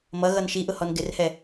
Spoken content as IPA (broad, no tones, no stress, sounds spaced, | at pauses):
m ʌ ɣ ʌ n ʃ i ʔ ʊ h ɔ n ɡ ɪ r h ɛ